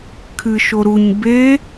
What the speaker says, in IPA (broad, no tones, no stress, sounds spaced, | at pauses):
kʰ ɨ ʃ o ɾ u ɲ b e